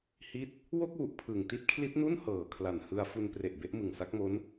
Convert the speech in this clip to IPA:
h i˥˩ t̚ | w o˥˩ k̚ w u˨˩ ʔ pʰ ɯ˨˩ ŋ t i˦˥ t̚ kʰ l i˦˥ t̚ n u˥˩ n h ɤː˨˩ kʰ l a˨˩ n h ɯ˧ a̯ f u˧ n p r e˨˩ ʔ b e˦˥ ʔ m ɯ˨˩ ŋ s a˦˥ k̚ m o˦˥ n

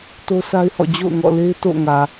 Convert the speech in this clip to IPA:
t o˦ sʰ a˦ ɪ̯ h ɔ̰˦˨ d͡ʑ o̰˦˨ ʊ̯ ŋ ɔ̰˦˨ l e˦ ɪ̯ t o̰˦˨ ŋ ä˨

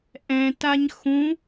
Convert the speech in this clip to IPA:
ʔ ɛ̃ t a ɲ x ũ

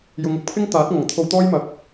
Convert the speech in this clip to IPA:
j ʊ˨˧ ŋ ʊ˧ k̚ pʰ ɪ˥ ŋ t̪ aː˨˥ t̚ ŋ ɐ˨˩ ŋ t̪ʰ o˧ w t̪ ɔː˥ j m ɐ˨ k̚

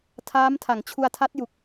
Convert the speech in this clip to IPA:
tʰ aː˦˥ m tʰ a˨˩ ŋ t͡ɕʰ u˧ a̯ tʰ a˦˥ t̚ j u˨˩ k̚

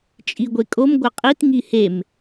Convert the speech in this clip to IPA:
t͡ʃʼ i ɡʷ e kʼ o m ɡʷ ɐ qʼ i t ŋ i h e m

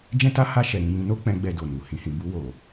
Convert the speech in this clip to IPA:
d͡ʒ ɛ̃˦ t a˦ h a˦˨ ʃ ɛ˨ ɾ ĩ˨ j ĩ˧ n o˦ k͡p ɛ̃˧ ɡ͡b ɛ˧ d o˨ n u˨ h ĩ˨ h ĩ˨ b u˧ w o˨

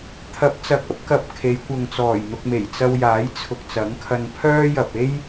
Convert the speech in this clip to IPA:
t̪ʰ ɐ˨˥ p̚ t͡s ɐ˨˥ k̚ ɐ˨˥ p̚ k ɐ˧ p̚ kʰ e˨˧ j kʷ ɐ˨ ŋ t͡s ɔː˨˩ j n̪ ʊ˨ k̚ m e˨˩ j t͡s ɐ˧ w j aː˨˥ j t͡sʰ ʊ˨ k̚ t͡s ɐ˨˥ ŋ kʰ ɐ˧ n pʰ œː˥ j ɐ˨ p̚ e˥ j

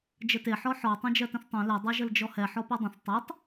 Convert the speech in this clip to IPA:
d͡ʒ ə t e ħ ɔ ħ ɔ tˤ ẽ d͡ʒ ɜ t ə̃ θ tˤ ẽ l ɛ dˤ ɜ ʒ ə l d͡ʒ ɔ h ɛ ħ ɔ p e dˤ ə̃ θ tˤ e tˤ

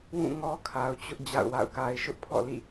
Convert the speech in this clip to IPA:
w ũ˦˨ ŋ ɔ˦ kʰ a˨ ʊ̯ t͡ɕ ʊ˦ ʔ d͡ʑ a̰˦˨ ʊ̯ w a̰˦˨ ʊ̯ k a˦ ɪ̯ ʃ ʊ˦ ʔ pʰ ɔ̰˦˨ l ḭ˦˨

